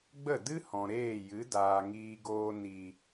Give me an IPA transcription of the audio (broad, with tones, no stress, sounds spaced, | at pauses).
ɡ͡b ə˦˨ d ɨ˦ h ɔ̃˨ ɾ eː˦˨ j ɨ˨˦ d aː˨ ŋ iː˧ ɡ oː˧ n i˨